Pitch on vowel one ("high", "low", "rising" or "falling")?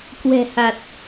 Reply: low